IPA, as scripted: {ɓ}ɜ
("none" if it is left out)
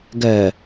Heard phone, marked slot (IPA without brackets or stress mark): ɡ